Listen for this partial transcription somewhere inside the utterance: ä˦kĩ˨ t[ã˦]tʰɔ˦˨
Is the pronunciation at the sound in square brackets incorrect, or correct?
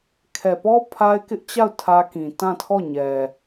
incorrect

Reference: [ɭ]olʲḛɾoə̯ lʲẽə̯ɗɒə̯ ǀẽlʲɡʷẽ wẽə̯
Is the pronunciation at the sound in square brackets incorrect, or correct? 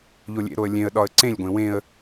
incorrect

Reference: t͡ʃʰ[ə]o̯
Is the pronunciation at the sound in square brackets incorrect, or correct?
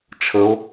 correct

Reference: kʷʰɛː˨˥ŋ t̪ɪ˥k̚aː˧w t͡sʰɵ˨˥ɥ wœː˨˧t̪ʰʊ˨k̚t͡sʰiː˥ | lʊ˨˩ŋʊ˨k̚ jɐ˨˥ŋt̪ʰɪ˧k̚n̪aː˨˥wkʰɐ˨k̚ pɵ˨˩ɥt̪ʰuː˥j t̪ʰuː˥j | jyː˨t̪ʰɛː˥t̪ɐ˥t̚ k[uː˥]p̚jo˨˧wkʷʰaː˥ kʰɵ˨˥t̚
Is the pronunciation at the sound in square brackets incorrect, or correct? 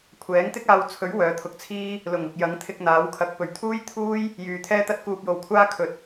incorrect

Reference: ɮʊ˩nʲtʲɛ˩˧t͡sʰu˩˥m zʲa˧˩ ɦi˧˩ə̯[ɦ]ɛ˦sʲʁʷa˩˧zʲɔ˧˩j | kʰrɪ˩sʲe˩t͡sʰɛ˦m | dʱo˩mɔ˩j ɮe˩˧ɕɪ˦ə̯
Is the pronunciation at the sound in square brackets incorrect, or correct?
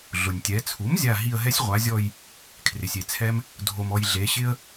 correct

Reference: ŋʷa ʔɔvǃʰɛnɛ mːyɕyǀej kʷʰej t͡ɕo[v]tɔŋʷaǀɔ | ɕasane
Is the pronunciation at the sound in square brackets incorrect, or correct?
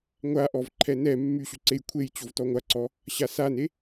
correct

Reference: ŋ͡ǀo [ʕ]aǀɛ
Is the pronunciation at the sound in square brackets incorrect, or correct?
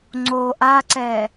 incorrect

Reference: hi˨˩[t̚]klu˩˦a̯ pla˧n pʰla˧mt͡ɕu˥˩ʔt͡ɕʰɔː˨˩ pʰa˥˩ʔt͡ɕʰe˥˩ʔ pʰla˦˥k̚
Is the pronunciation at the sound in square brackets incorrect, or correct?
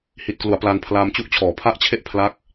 correct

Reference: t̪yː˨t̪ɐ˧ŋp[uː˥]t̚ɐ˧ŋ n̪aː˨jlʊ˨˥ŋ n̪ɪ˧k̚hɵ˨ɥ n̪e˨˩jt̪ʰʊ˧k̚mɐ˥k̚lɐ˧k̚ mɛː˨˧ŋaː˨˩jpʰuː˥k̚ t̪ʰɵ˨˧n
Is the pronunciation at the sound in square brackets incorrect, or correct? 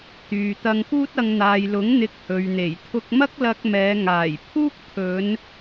correct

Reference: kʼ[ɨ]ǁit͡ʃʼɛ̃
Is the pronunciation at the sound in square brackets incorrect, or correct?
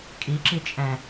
incorrect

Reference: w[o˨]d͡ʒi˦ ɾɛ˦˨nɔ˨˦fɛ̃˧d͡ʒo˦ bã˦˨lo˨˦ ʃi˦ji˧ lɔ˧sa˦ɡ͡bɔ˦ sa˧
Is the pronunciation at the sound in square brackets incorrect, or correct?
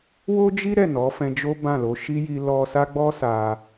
incorrect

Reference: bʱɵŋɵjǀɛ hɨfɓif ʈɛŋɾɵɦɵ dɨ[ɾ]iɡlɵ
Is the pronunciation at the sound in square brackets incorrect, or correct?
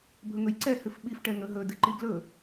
incorrect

